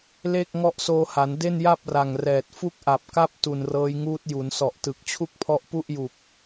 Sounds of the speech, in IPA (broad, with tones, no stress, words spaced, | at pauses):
le˥˩k̚ ŋɔ˦˥ʔsoː˧ha˩˦n de˥˩nja˥˩p̚ra˨˩ŋ rɛː˨˩t̚ fu˥˩k̚ʔa˨˩p̚ka˥˩p̚ tu˨˩nrɤː˦˥jŋuː˦˥t̚ ju˩˦nsɔ˨˩ʔtɯ˨˩k̚ t͡ɕʰu˥˩k̚pʰɔ˦˥ʔpu˥˩ʔju˨˩k̚